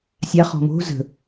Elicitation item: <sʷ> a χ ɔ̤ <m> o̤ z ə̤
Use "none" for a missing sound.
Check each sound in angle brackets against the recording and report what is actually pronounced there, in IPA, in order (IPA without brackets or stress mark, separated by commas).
sʲ, m